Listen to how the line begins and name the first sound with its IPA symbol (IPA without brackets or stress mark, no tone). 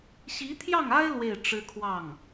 ɕ